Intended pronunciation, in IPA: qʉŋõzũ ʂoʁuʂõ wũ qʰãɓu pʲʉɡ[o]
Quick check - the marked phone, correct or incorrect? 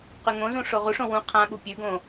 incorrect